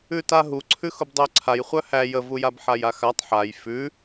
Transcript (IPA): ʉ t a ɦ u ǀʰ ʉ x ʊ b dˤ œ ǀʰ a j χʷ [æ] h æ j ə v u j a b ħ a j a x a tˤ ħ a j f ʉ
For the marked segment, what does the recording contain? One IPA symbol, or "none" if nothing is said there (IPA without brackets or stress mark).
œ